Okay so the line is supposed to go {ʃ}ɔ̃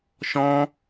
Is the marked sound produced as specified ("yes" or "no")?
yes